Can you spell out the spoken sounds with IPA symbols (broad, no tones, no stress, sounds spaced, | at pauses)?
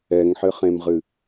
ɛ ŋ ħ ɘ χ ẽ m ʁ ɨ